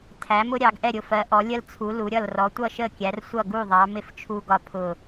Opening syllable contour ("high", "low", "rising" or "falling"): rising